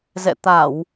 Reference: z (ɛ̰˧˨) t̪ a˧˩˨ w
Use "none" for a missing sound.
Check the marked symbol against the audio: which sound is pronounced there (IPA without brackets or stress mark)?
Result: ɛ̰˧˨